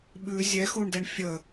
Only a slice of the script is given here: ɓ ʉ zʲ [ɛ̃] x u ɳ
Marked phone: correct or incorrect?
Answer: incorrect